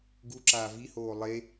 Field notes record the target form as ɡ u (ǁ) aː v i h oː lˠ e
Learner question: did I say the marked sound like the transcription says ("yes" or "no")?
yes